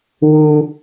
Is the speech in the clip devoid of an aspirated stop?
yes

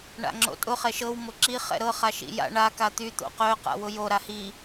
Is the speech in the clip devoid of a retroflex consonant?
no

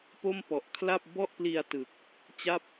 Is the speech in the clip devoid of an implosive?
yes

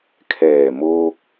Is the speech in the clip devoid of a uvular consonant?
yes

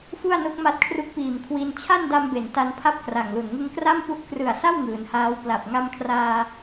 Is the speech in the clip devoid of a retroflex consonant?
yes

